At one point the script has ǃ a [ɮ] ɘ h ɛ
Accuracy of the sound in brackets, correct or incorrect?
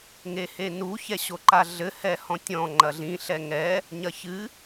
correct